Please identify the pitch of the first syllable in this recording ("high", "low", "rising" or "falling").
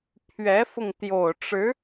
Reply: rising